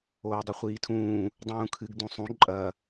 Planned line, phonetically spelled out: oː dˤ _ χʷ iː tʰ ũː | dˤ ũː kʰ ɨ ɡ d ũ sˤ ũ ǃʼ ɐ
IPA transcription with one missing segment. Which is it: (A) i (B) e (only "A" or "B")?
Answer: A